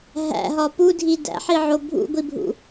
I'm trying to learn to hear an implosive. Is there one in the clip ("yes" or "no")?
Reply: no